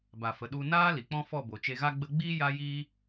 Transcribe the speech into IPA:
b a˨ f ə˨ ɗ u˧ n aː˦ l i˨ k͡p ɔ̃˦ f ɔ˦˨ b o˨ t͡ʃ e˧ ɣ a˦ ɡ͡b ə˧ ɡ͡b iː˦ j a˦ j iː˦

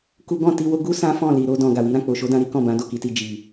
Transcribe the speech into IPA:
k u˦ ɡ ɔ̃˦˨ t i˧ w o˦ ɡ u˦ s ã˦ f ɔ̃˦˨ l i˨ ɾ o˧ d ɔ̃˨ ɡ a˨ w i˨˦ ɾ ã˦˨ k͡p o˨ ʃ o˨˦ d ã˧ ɾ i˦ k ɔ̃˦˨ b ã˨˦ d o˦˨ k i˨˦ t i˧ d͡ʒ i˨

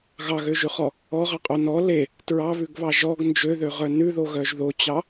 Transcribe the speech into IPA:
ɣ ɑ ɣ ø ʒ ʉ χ ɔ | ɔ ʁ ɑ qʼ o n ɔ l e | t ɹ ɑ β ʉ ɡ β ɑ ʒ ɔ ɡ n d͡ʒ ø ð ø ʁ œ n ʉ ð o ɣ œ ʒ ð o t͡ɕ ɑ

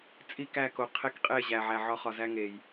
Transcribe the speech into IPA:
t͡sʼ i˦˨ k æ˦˨ k o˨ qʰ e˦ k qʼ e˦˨ ʑ æ˨ ʕ æ˨ ʕ ɒ˦ χ ɒ˨ z æ˦ ŋ e˨ j

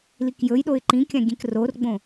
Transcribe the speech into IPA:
l i k j ɵ j ɗ o ɪ̯ ǃ ĩ kʲ ã ɡʲ ẽ k r o r ɡ͡b õ

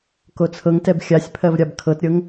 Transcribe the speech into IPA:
k o t͡sʰ ɤ ŋ t ɛ b xʲ a sʲ pʰ ɜ v ɾʲ a b kʰ ɤ t ɾʲ ɤ ŋ

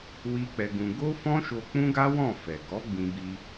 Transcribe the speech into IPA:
w i˦ k͡p ɛ˧ ɡ ũ˧ ɡ o˦ f ɔ̃˦ ʃ o˧ k͡p ũ˦ ɡ a˦ w ɔ̃˦˨ f ɛ˨ ɡ ɔ˨˦ ɡ͡b ĩ˧ b i˧

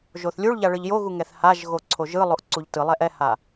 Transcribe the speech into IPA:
ʒ o θ lʲ u ɭ ʎ a ɭ ɯ ʎ j o ɣ u ŋ ɛ θ h a ʒ ɣ o ǀʰ o ʒ ɯ lˠ o ʔ ǀ u ʎ t ɯ lˠ ɛ ʔ ɛ h a

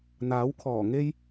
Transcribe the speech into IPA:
n̪ aː˨˥ w kʰ ɔː˨˩ ŋ e˥ j

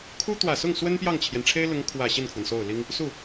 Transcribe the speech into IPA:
kʰ u˥ t̪ w ä˨˩ s ʊ˥˩ ŋ s w ə˥ n p j ɑ˥˩ ŋ t͡ɕʰ j ɛ˩ n ʈ͡ʂʰ e˥ ɪ̯ l ʊ˧˥ ŋ kʰ w ä˨˩ ɕ i˥˩ n kʰ w ə˩ n s o˥˩ ʊ̯ l i˥ ŋ | s u˥˩

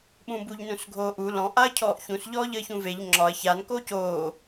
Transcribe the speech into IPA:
ɓ ũ b u ʎ n ũ s ɡʱ oː ʔ u l ɔ̃ ʔ a ɐ̯ cʰ ɔː ʔ ç ũ s ʎ ɔː ʎ əː ç ũ v e ʎ ŋ͡ǁ ɒ ɐ̯ ç a n k oː c oː

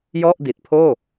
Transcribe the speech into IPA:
j ɔ˥˩ ʔ d i˨˩ t̚ pʰ oː˥˩

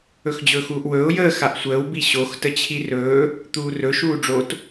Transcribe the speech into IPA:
ɵ x d͡ʑ ɵː x uː ʔ w ɵː ʊ̯ j əː x a ʔ sʷ əː w b i ɕ o x t ə t͡ɕʰ i r ɵː | t̪ uː r ɵ ʃ uː ɖ͡ʐ o t

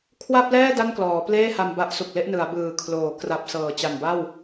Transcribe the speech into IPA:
kʰ w a˥˩ p̚ l ɛː˥˩ d a˥˩ n k l ɔː˩˦ p l eː˥˩ h a˧ m b a˦˥ ʔ s u˨˩ k̚ l e˥˩ ʔ n ɯ˩˦ a̯ b ɯː˨˩ kʰ l oː˩˦ k r a˨˩ p̚ s ɤː˨˩ t͡ɕ a˨˩ n b a˥˩ w

